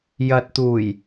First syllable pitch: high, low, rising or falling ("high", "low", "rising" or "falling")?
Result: low